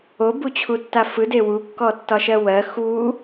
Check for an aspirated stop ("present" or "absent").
present